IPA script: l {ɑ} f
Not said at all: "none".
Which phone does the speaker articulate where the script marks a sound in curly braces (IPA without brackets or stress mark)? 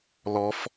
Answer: ɔ